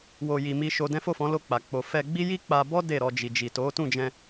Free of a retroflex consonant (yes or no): yes